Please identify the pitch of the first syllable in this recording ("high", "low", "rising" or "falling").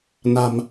low